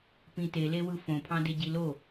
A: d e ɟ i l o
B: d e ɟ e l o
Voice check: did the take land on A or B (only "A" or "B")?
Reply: A